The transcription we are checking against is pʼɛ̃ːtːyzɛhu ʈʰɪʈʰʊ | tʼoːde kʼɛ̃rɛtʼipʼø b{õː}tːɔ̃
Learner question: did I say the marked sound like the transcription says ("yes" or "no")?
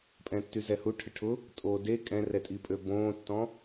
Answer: yes